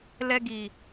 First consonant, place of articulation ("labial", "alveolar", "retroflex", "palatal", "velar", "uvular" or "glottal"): alveolar